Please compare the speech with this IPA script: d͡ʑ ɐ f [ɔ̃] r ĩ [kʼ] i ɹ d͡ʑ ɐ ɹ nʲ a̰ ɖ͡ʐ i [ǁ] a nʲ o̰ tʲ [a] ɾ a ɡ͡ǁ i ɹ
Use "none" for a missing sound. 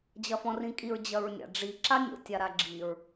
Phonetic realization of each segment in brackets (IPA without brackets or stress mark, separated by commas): ɔ̃, kʼ, ǁ, a